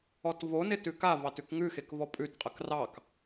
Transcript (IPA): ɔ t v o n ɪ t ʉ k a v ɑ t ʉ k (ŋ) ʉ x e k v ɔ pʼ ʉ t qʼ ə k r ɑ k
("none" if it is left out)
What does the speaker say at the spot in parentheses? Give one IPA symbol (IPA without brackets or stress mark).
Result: ŋ